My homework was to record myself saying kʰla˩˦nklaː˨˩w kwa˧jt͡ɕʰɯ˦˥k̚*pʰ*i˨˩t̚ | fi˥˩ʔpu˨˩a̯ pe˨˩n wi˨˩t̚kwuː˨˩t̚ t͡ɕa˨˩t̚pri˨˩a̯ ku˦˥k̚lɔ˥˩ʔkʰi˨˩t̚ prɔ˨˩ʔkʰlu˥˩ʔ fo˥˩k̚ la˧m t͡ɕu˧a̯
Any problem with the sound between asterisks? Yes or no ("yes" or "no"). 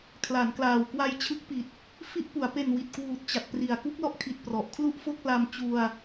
yes